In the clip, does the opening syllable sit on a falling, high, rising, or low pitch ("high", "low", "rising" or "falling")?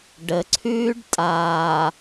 low